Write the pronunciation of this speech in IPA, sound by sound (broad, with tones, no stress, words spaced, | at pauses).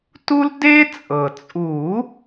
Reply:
tu˦l de˦t͡sʼɤ˩t͡sʼu˨˩˦